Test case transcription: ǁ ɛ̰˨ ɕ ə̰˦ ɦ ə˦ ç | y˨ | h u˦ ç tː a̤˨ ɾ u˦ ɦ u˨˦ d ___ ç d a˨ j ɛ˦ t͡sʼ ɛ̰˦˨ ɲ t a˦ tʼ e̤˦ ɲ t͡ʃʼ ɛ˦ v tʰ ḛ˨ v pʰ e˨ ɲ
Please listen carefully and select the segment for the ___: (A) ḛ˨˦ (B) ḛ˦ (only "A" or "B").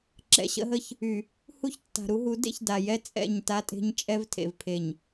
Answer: B